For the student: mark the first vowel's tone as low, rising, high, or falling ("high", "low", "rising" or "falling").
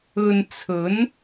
low